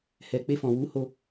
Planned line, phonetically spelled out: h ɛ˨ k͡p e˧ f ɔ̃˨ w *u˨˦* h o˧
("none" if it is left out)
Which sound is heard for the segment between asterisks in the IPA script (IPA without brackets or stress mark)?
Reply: u˨˦